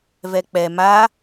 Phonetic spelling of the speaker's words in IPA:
v ɛ k͡p ɛ m a

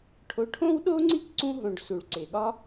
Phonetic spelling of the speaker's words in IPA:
ʈʰ o˨ ʈʰ õ˦ w ɗ o˦ ŋ͡ǀ i˦ k ǀ ũ˧ ɦ õ˨ ɖ s u˨ ɭ ǀ e˨ ɠ ɒ˦

